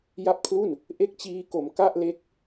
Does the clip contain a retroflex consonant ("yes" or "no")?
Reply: no